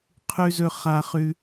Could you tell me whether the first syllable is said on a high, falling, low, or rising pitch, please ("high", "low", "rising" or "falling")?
high